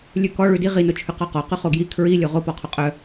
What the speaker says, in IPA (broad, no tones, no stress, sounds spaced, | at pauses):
lʲ ʉ k ɔ ɭ ʉ d i ʁ i n o t͡ʃʰ ʉ q ɔ q ɔ q ʉ χ o ɡ j i kʰ ɹ i lʲ o ʁ o p ɔ qʰ o qʼ œ